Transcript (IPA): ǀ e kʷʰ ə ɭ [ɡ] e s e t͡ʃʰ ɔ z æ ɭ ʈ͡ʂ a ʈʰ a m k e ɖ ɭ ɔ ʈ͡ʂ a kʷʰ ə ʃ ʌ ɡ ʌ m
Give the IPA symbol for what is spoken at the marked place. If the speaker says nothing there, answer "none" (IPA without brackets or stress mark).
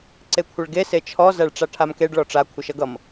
ɡ